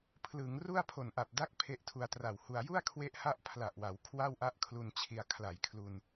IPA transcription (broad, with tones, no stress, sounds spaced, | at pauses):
pʰ l ɯ˩˦ ŋ r u˥˩ a̯ pʰ o˨˩ n ʔ a˨˩ p̚ d a˦˥ k̚ pʰ e˦˥ ʔ tʰ u˧ a̯ t r a˨˩ w h u˧ a̯ j u˥˩ a̯ kʰ w e˦˥ ʔ h a˦˥ ʔ pʰ l a˨˩ ʔ w a˩˦ w kʰ w a˥˩ w ʔ a˥˩ ʔ kʰ l u˧ n t͡ɕʰ i˧ a̯ kʰ l a˨˩ j kʰ l u˧ n